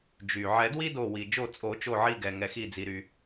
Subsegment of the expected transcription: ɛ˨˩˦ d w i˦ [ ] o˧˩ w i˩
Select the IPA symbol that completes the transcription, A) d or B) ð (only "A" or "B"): A